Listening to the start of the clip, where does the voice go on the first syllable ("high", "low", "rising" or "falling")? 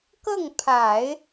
falling